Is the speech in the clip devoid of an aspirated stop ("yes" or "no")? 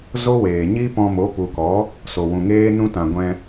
yes